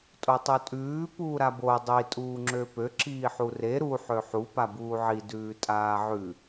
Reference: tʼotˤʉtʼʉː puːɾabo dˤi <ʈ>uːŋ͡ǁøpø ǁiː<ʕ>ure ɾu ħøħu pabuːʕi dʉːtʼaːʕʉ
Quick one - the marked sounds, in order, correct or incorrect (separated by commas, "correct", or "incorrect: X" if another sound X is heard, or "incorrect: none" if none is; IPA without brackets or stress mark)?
incorrect: tʼ, incorrect: ħ